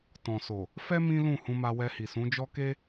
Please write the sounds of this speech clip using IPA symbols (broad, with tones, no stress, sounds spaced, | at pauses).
t ɔ̃˨ s o˨ | f ɛ˦ m ĩ˦ l ũ˦˨ h ũ˧ m a˧ w ɛ˧ h i˨ s ũ˨˦ d͡ʒ ɔ˦ k e˦